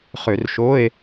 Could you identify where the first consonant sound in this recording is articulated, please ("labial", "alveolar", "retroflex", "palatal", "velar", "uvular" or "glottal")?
uvular